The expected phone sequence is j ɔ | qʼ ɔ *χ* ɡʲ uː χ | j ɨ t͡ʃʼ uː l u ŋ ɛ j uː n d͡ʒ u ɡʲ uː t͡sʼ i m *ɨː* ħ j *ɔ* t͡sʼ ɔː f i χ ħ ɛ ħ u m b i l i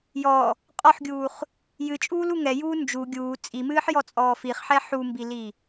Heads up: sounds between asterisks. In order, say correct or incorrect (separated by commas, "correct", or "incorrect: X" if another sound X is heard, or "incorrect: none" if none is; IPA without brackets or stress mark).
incorrect: ħ, correct, correct